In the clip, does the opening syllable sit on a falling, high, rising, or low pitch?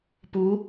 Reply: rising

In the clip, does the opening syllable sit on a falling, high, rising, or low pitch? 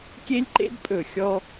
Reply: high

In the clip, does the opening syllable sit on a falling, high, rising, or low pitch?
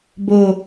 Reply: low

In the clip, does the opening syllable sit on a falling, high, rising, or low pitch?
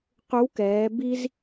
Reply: rising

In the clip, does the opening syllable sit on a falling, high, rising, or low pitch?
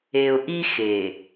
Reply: low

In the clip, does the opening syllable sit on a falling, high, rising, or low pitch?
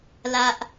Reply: high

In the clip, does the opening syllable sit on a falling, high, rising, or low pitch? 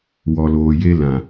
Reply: low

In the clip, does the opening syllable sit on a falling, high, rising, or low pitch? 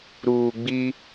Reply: low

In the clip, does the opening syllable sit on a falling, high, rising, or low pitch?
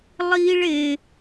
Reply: high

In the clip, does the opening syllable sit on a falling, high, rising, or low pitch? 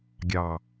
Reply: low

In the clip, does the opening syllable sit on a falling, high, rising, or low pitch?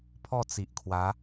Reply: falling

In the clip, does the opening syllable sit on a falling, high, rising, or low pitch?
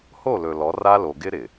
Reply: falling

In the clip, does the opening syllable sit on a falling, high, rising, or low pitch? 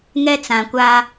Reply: high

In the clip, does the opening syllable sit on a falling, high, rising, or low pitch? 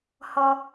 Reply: low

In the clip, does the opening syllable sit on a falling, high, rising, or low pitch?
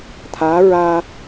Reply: rising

